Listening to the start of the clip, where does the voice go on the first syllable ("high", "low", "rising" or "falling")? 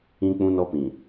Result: high